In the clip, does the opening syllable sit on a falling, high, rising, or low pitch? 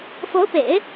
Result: rising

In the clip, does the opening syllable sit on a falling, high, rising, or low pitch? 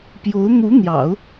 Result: rising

